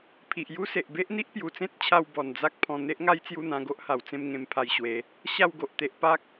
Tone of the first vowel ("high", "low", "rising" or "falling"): low